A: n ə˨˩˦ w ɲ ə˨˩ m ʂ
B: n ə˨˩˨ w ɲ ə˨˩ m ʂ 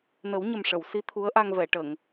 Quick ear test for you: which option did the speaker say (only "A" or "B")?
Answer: A